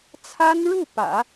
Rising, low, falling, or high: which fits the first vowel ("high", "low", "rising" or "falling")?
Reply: high